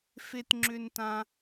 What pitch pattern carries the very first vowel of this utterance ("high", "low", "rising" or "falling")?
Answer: high